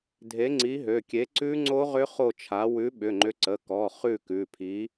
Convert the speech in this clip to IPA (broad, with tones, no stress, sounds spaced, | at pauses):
dʱ e˨˥ ŋ͡ǀ i˨˥ ɦ ø˩˧˩ kʲ e˨˥ ǀ ʉ˦˥ ŋ͡ǀ o˦˥ ʁ ʏ˦˥ χ o˥˨ t͡ʃʰ a˨˥ w ʉ˨˥ ɓ ʏ˩˧˩ ŋ͡ǃ ʏ˨˥ ǀ ə˩˧˩ k ɔ˩˧˩ χ ʉ˥˨ k ʉ˩˧˩ pʰ i˨˥